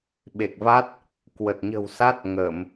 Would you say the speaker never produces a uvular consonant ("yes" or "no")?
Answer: yes